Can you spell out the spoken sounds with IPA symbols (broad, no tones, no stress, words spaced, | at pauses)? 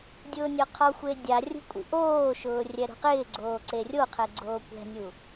dʲʊːnʲɔqʰɔxʷe dʲa rʲṳkʷʼḭʔoːʃʊː rʲɛɾṳqɪːɡ͡ǀoː ǀerʲoqʰɛ ɡ͡ǀoːkʷɛ̤nʲu